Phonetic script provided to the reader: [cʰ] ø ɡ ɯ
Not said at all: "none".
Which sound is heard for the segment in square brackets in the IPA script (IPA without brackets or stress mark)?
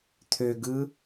t̪ʰ